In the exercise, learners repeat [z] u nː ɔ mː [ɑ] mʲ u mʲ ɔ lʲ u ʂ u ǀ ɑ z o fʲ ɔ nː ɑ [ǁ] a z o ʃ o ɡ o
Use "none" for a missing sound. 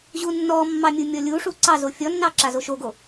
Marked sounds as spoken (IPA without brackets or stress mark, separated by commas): ʑ, ɑ, ǁ